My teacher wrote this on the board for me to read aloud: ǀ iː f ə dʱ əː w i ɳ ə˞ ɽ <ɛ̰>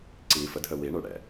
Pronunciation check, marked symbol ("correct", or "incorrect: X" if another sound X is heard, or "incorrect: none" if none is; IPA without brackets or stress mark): correct